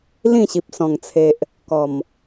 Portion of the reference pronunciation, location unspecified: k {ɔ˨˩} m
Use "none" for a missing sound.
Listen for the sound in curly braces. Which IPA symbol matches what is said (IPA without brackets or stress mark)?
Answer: ɔ˨˩